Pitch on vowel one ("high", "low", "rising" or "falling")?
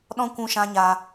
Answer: high